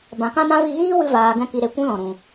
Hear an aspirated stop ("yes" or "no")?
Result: no